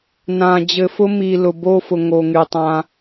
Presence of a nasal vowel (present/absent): present